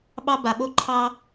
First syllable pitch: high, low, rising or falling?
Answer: high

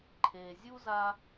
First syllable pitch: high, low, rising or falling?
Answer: low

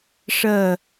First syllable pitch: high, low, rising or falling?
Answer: falling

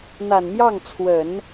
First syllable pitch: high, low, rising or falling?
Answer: low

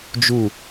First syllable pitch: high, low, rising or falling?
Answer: low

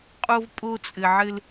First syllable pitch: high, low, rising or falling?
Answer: high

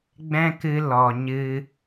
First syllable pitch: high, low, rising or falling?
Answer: high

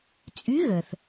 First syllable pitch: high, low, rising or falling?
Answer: rising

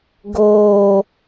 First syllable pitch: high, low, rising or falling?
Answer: low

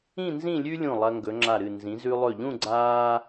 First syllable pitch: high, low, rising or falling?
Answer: falling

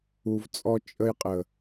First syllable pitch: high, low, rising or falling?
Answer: low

